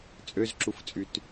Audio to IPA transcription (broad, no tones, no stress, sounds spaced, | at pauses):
t͡sʼ ø z ǁ u f t͡sʼ y t